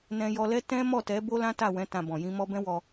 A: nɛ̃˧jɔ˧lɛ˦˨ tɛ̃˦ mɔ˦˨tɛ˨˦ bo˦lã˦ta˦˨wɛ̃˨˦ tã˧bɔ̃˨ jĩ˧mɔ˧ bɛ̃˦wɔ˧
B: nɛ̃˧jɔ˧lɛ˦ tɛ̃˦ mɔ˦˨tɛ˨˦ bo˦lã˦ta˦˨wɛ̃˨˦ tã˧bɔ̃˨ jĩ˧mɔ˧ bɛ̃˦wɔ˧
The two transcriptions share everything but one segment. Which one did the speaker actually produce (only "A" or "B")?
B